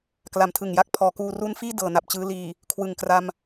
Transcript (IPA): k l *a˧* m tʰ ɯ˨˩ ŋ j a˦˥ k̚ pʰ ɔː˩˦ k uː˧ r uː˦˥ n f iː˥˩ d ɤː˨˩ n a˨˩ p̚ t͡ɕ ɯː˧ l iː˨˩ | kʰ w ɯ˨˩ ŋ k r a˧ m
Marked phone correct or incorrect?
incorrect